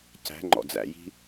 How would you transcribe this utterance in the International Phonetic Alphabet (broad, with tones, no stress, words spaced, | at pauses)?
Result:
cæ̤˨˦ ŋ͡ǃɔ̰˨d͡zæ̰˨ji̤˦